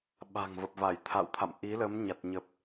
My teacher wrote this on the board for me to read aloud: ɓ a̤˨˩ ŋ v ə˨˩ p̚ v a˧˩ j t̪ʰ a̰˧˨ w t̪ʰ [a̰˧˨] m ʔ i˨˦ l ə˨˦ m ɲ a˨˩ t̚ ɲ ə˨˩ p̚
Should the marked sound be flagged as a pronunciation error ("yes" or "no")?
no